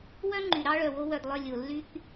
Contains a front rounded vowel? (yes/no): yes